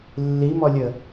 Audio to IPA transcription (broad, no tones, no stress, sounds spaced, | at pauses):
lː i m ɔ lʲ ə